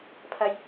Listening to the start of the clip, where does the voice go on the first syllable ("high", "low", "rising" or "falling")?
low